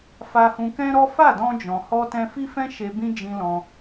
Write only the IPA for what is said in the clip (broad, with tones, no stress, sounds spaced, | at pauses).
f a˧ h ũ˧ k ɛ̃˦ ɾ ɔ˦ f a˦˨ d ɔ̃˧ d͡ʒ ɔ̃˨ h ɔ˧ t ɛ̃˧ f i˦ f ɛ̃˦ ʃ e˧ b ĩ˦ d͡ʒ ĩ˧ l ɔ̃˧